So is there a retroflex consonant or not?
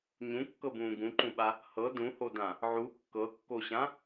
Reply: no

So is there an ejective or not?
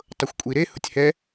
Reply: yes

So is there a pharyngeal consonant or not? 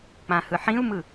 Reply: yes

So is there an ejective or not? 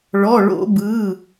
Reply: no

